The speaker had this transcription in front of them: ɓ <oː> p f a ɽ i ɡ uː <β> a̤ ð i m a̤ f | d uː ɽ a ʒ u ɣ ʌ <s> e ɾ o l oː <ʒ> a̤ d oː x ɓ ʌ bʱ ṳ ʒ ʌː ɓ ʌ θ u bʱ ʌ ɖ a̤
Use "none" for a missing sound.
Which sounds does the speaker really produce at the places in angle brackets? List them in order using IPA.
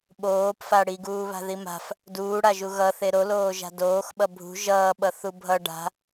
oː, β, θ, ʒ

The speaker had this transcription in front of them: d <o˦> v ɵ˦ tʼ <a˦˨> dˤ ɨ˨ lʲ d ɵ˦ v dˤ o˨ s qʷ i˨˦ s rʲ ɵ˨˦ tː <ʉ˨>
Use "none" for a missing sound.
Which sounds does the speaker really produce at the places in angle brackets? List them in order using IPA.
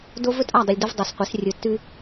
o˦, a˦˨, ʉ˦

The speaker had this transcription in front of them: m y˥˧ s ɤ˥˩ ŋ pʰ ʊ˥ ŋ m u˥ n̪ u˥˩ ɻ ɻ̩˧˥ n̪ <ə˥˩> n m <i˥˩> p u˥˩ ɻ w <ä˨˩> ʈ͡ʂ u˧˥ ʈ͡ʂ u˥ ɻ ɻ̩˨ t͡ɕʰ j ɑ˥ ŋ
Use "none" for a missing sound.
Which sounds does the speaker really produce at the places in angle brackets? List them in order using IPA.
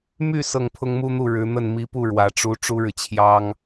ə˥˩, i˧˥, ä˨˩

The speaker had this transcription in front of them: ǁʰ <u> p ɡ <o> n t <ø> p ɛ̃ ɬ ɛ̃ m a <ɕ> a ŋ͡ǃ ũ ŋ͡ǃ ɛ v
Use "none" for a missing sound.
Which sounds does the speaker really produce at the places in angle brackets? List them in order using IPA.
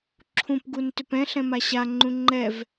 ũ, u, ø, ɕ

